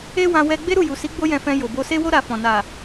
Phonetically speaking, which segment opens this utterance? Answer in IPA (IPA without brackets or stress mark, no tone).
e